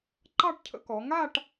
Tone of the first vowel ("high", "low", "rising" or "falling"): falling